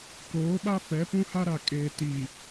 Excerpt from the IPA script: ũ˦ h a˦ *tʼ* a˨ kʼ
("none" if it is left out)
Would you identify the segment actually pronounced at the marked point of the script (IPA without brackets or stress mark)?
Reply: ɾ